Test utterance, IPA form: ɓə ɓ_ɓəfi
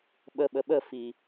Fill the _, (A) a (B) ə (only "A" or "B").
B